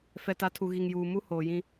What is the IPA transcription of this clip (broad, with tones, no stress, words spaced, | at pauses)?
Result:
fɛ˨ta˨˦tʰu˨ ɣi˨ŋjuː˨ mu˦ hoː˨jĩ˦